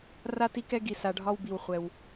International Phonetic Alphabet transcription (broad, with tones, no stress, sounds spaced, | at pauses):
r a˥ t i˥ k ɛ˥ ɡ i˧ s a˧ ɖʱ ɒ˥ w b i˧ w χʷ ɛ˧ w